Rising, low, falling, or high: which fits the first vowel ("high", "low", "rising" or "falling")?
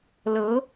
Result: rising